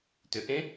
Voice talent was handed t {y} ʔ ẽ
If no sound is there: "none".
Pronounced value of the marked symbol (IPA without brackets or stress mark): ʏ